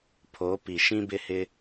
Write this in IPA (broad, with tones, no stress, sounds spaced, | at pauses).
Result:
pʰ o˨˦ p i˨ ʃ ĩ˦ b ɪ˦ h ɪ˦